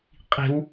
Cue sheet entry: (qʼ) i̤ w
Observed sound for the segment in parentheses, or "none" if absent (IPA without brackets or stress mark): qʼ